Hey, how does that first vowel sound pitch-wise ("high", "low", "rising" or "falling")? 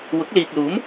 rising